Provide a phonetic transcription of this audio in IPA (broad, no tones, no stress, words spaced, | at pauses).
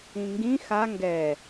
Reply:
ĩŋɡĩ xa ŋɡɛ